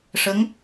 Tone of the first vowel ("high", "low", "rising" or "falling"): rising